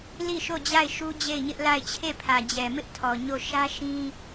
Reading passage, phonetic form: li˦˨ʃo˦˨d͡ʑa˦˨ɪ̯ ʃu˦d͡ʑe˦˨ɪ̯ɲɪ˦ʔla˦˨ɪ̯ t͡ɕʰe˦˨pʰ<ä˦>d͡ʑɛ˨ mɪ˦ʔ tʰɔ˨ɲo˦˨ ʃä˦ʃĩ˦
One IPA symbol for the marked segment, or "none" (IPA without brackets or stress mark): ä˨